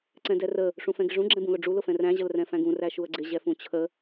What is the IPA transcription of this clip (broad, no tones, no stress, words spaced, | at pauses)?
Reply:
ǀɛ̃dɛrə | ʂũfɛ̃ɡɪʐũ ɡ͡ǁɛ̃bũlʊɖ͡ʐu lʊfɛ̃ræ̃ ʑəlrɛ̃fæ̃ɡũ ræʃuə̯ɡ͡ǀɪ ʑɛfũt͡ɕʰə